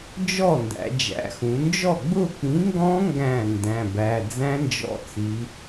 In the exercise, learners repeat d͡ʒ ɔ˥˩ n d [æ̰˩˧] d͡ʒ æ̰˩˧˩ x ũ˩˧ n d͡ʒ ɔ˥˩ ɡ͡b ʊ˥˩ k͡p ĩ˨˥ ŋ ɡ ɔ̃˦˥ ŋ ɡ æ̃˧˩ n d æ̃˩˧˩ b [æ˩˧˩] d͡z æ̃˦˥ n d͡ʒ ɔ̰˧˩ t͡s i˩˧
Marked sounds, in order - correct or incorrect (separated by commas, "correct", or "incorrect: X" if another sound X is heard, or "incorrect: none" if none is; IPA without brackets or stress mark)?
correct, correct